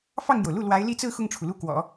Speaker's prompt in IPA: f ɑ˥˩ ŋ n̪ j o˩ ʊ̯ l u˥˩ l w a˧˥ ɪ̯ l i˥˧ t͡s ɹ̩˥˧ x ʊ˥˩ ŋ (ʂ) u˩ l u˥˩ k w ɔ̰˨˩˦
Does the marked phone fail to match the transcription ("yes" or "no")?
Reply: yes